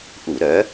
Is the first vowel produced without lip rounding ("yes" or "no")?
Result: no